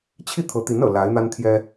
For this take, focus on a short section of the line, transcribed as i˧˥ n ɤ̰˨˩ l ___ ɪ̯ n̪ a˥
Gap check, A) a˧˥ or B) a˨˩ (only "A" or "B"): A